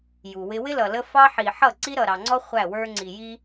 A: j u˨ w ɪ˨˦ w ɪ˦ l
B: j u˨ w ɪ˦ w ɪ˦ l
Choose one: B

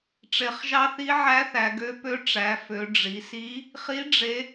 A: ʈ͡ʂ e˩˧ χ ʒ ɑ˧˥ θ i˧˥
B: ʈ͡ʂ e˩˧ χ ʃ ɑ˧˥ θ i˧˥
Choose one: A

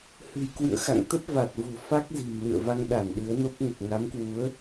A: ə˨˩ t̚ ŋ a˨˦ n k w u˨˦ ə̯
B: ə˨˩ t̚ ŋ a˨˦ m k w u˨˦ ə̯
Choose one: B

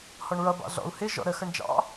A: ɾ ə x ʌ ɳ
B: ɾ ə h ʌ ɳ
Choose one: A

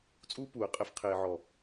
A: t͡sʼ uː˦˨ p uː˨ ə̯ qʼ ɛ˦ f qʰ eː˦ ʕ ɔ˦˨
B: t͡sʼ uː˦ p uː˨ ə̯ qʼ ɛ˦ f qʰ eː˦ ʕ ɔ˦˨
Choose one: B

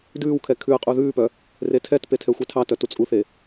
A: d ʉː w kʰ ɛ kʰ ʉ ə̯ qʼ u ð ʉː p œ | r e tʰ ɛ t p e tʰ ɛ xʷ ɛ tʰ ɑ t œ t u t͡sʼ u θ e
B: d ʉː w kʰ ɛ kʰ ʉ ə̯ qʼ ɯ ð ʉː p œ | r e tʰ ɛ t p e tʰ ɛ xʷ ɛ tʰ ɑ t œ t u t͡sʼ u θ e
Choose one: A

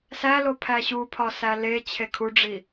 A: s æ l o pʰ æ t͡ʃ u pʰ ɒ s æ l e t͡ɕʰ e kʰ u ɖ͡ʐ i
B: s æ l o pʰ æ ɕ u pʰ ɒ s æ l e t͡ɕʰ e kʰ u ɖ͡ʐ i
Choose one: B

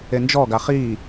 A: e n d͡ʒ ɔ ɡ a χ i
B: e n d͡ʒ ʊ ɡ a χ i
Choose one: A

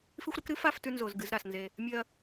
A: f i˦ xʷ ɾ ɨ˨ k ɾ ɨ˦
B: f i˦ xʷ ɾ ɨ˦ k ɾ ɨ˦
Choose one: B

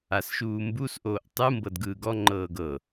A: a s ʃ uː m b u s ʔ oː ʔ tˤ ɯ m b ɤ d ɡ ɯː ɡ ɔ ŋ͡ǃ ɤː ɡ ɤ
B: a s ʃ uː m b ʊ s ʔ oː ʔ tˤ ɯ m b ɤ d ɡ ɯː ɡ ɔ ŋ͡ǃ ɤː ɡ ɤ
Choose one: A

